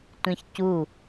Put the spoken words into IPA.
tʷ ĩ ç c u

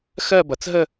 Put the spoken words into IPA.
x ɜ˥˧ b ʌ˩˧ t͡s ɦ ə˥˧

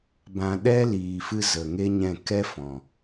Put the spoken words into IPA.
b ã˨ ɗ ɛ˦ l iː˨ f ɨ˧ z ə˨ ŋ e˦ ɲ ɛ̃˦˨ k ɛ˦ f ɔ̃˨

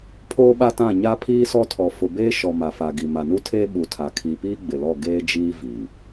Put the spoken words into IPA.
pʰ oː˦ ɓ a˦ t ã˦˨ ɲ a˦ pʰ iː˦ s ɔ˦ tʰ ɔ˨ f ʊ˨ b eː˦ ʃ ɔ˨ m a˨ f a˨ ɡ i˨ m a˨ n u˦ tʰ eː˦ ɓ u˨ tʰ a˨ kʰ i˨ p iː˦ ɡ͡b ɪ˨ l ɔ˦˨ ɡ eː˦ d͡ʒ iː˦ v iː˨

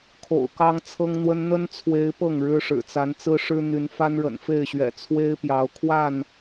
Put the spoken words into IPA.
kʰ o̰˨˩ ʊ̯ k ɑ˦ ŋ t͡sʰ ɤ˦ ŋ n̪ w ə˦ n n̪ ə˦ n t͡sʰ w e˨˦ ɪ̯ p ɤ˥˨ ŋ ɻ ɻ̩˦ ʂ ɻ̩˨˩ t͡s a˨˦ n t͡s ɹ̩˦ ʂ ɻ̩˦ n̪ y˨˦ n f a˦ n ɻ ə̰˨˩ n f e˥˨ ɪ̯ ɕ ɥ ɛ̰˨˩ t͡sʰ w e˦ ɪ̯ p j ɑ˨˦ ʊ̯ kʰ w a˥˨ n

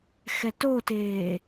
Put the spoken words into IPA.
x ɛ t o t eː

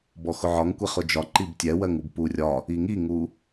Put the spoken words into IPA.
b ɔ x ʊ ʕ ɒ ŋ kʷ ɛ χ ʊ d͡ʒ ɒ ǃ i b tʲ ɛ w ɜ ŋ u b p u rʲ ɒ | i ŋ i ŋ u

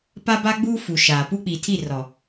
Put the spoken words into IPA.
p a˦ b a˦ ɡ͡b uː˦ f u˨ ʃ aː˨ p u˦ k͡p i˨ tʰ i˦˨ r ɔ˨

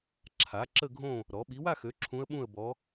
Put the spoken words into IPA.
ǁʰ a˩˥ ǁ ə˥˨ ɡʱ õ˥˨ | ɾ ɔ˩˥ ɓ i˩˥ w a˥˨ x ø˩˥ ǁʰ ũ˧˥ ə̯ ɓ ũ˥˨ ə̯ b ɔ˧˥

